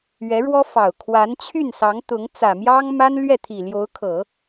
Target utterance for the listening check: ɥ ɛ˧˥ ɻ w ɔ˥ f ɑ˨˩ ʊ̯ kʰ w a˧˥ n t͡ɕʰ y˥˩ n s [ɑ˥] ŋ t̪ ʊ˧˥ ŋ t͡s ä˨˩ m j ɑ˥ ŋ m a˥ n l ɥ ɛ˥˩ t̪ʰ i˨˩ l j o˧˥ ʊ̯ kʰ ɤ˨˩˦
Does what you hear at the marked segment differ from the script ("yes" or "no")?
yes